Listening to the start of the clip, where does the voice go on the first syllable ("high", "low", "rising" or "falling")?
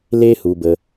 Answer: high